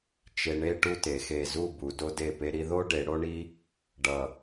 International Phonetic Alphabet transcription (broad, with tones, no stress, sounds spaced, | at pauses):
t͡ʃ e˧ ɳ e˥ ʈ u˥ t e˩˧ x e˧˩ z u˥˧ b u˩˧ d o˧ d e˧˩ p e˧ ɾ i˧ ð o˥ ɖ e˩˧ ɽ o˥ ɳ i˥ | ɖ ʌ˧˩